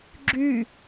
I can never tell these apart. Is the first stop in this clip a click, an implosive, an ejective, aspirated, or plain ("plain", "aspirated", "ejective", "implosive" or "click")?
click